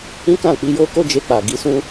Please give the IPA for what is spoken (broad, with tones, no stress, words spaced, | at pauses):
ĩ˦kã˦˨ k͡pi˧jo˦ko˦ d͡ʒe˧k͡pa˨ ɡi˧sũ˦